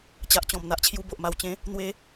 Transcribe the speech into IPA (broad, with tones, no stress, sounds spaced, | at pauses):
t͡ɕ a˨ ʔ t͡ɕ ɔ̃˨˩ m n̪ a˨ ʔ t͡ɕʰ j u˧ b o˨ ʔ m a˨˩ w t͡ɕ ẽ˨˦ | n̪ w e˧